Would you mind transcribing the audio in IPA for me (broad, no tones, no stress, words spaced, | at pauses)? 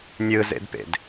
nʲɯzḛdpḛd